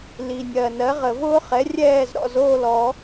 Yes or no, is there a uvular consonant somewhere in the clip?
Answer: yes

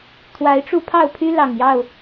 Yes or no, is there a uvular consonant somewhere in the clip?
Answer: no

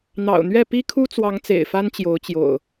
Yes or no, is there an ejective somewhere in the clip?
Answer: no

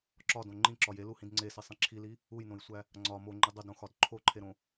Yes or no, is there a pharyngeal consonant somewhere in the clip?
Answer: no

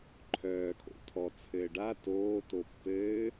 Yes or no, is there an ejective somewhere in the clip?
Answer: no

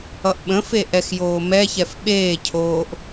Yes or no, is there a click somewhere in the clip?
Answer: no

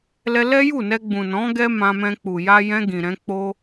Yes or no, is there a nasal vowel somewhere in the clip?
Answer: yes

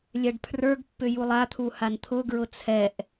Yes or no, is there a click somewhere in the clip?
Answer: no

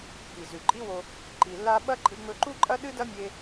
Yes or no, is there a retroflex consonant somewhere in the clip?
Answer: no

